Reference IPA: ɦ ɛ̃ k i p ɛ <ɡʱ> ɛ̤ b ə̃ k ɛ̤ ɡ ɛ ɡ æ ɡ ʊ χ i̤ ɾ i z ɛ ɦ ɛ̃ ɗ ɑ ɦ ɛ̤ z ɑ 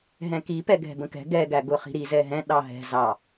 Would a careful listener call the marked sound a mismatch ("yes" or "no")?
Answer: no